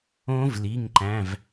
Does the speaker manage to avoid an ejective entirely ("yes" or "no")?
yes